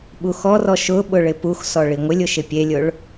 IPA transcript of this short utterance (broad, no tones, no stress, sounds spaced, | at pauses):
ɓ u x ɔ r ɔ ʃ ʊ ɓ ʊ ɭ ɪ p u x s ɔ ɭ i ŋʷ ɪ lʲ ʊ ʃ ɪ pʲ e lʲ ʊ ɭ